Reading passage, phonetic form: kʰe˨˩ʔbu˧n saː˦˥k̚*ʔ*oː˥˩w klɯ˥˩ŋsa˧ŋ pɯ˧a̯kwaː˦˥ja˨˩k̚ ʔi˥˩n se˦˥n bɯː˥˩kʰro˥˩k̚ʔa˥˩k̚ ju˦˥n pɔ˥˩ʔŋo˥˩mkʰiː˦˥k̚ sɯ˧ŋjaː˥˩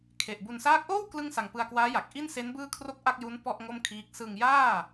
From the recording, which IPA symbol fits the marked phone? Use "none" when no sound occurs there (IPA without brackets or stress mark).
ʔ